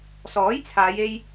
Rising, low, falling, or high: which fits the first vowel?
rising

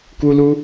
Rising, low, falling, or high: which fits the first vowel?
high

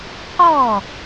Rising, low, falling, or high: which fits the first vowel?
falling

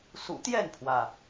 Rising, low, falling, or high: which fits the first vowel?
low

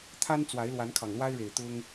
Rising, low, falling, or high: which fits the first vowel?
high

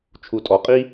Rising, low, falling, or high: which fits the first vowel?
low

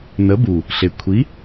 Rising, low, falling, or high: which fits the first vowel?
rising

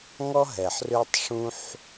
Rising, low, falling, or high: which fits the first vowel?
high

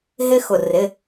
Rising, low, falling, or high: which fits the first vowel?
high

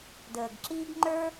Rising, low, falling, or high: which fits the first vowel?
low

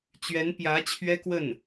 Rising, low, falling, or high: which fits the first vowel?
rising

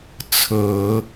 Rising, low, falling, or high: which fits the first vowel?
low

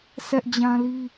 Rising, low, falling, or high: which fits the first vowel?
high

